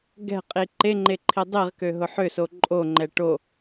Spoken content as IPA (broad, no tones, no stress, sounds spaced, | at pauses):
ɡ ɛ̤ qʼ i ǃ e ŋ͡ǃ e ǃʰ i dˤ i ʁ k ø ɦ ʊ ħ ʏ s o ǃʼ o ŋ͡ǃ ɛ ʈ o